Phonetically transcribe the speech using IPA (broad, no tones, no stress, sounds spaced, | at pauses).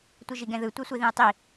tʷ ɯ ʒ i ɡ ɛ̃ ð ɯ tʷ ɛ sʷ i ð ĩ ə̯ tˤ i